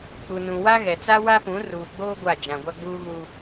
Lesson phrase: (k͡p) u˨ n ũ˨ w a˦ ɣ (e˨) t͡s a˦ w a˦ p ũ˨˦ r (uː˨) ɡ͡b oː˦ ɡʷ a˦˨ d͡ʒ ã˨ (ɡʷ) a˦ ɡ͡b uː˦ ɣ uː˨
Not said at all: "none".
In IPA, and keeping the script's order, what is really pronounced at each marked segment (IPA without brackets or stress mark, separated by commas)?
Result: k͡p, ɛ˨, uː˨, ɡʷ